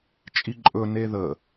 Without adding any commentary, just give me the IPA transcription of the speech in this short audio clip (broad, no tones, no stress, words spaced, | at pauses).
t͡ʃʼiǃʼɵ neðə